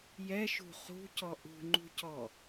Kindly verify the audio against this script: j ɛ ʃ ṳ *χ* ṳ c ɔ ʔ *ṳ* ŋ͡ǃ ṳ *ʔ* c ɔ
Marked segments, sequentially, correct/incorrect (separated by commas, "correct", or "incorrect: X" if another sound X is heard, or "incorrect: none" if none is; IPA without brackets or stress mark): correct, correct, incorrect: none